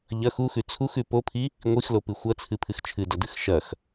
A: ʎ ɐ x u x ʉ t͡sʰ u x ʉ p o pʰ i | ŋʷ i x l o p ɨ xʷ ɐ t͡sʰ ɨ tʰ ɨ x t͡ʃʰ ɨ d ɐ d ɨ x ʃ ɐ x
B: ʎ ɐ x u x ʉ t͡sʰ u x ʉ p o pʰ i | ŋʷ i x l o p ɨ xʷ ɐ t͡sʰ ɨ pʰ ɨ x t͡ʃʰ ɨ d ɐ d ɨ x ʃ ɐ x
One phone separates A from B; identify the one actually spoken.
B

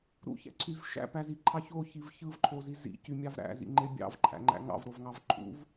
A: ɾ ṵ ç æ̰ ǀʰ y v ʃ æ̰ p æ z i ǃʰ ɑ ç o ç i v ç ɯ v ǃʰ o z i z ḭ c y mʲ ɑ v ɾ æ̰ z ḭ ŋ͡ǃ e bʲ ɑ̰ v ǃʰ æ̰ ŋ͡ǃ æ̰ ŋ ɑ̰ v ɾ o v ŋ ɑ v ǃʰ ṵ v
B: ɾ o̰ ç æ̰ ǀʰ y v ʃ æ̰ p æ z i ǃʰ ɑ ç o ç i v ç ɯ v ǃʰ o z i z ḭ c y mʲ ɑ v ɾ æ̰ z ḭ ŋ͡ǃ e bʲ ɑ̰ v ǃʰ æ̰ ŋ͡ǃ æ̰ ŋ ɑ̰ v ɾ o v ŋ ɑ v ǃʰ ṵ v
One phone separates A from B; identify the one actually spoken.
A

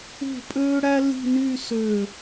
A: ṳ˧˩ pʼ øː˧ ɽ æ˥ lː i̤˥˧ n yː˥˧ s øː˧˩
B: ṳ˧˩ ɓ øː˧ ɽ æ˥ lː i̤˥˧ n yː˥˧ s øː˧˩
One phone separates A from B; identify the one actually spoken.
A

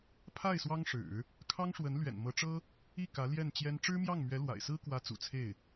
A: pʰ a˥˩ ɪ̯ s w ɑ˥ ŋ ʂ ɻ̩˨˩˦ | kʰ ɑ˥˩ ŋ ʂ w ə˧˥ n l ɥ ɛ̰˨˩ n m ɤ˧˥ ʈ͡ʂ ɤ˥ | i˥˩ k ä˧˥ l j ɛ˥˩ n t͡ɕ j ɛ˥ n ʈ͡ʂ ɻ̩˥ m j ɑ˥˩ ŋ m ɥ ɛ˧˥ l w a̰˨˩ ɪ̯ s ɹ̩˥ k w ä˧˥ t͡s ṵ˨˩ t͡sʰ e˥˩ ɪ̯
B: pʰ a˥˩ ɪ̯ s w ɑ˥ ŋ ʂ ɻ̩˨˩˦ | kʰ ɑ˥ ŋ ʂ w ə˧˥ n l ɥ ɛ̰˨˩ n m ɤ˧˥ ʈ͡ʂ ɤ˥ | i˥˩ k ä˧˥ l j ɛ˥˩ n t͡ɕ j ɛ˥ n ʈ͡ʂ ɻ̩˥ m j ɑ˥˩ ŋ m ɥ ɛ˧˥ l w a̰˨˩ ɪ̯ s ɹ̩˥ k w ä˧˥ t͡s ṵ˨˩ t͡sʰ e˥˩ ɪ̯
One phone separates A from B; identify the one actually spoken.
B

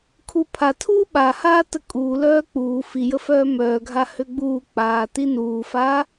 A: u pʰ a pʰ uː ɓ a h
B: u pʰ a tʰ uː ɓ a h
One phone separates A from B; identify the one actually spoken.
B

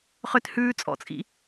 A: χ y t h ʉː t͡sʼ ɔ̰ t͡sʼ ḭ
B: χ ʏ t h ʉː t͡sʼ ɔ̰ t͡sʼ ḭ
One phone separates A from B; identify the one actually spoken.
B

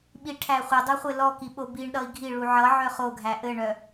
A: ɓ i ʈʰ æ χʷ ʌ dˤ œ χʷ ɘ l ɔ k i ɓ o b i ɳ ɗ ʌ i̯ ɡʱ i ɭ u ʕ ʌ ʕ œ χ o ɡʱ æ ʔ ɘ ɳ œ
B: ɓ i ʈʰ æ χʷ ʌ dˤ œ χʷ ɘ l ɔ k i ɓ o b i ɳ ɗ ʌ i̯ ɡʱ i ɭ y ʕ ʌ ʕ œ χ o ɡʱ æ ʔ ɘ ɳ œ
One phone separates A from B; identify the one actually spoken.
A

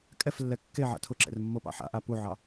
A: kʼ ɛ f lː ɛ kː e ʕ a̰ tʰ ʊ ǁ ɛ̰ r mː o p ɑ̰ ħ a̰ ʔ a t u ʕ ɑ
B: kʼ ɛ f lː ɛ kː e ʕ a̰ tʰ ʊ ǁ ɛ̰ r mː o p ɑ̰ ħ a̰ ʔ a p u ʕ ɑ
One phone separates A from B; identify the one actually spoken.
B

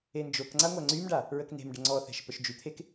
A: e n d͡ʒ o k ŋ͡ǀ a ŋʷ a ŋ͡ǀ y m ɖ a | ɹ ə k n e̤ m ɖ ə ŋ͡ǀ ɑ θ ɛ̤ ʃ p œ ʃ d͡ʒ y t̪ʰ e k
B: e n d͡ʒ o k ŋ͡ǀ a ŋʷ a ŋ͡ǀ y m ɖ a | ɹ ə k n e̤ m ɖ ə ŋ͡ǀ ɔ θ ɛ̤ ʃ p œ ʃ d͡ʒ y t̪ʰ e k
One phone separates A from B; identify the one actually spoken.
B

